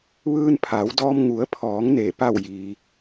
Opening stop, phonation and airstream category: aspirated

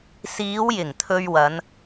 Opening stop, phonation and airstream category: aspirated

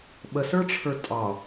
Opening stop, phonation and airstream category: implosive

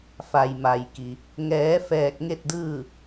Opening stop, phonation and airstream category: plain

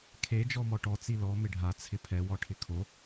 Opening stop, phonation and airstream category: aspirated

